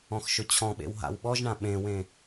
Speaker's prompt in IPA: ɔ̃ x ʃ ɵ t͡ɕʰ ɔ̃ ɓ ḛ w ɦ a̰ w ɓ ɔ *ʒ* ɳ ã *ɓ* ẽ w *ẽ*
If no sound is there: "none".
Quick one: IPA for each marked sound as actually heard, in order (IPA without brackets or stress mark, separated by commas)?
ʒ, ɓ, ẽ